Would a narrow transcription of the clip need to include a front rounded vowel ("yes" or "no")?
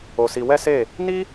no